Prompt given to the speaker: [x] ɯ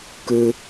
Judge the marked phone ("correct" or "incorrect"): incorrect